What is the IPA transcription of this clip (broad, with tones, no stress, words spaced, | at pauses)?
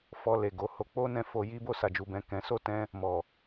fɔ˧le˨ɡo˨˦ho˧ k͡po˦nɛ̃˧ fo˧ji˦ bo˦˨sa˨d͡ʒu˨bɛ̃˨ kɛ̃˨˦ so˦˨tɛ̃˧ | mɔ˨